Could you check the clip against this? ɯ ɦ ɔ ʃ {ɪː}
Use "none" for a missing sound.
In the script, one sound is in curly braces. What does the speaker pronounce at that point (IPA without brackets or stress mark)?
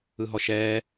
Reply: ɛː